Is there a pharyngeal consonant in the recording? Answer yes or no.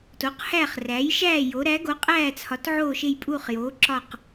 yes